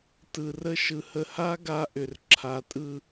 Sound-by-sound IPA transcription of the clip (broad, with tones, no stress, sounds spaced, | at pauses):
t ɯ˨ r ə˦ ʃ ɯ˨ h ə˨ h a˦ ɡ a˦ ʔ ʏ˨ r ǁʰ a˨ tʼ ɯ˦